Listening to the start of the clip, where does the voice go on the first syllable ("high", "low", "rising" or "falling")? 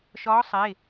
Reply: rising